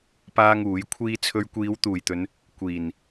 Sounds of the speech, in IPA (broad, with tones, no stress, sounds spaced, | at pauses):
p aː˥ ŋ uː˨˥ j kʷʰ iː˥ t͡sʰ ɵ˧ ɥ kʷ iː˨˧ w t̪ uː˨˩ j t̪ ɵ˨˧ n | kʷ iː˨˩ n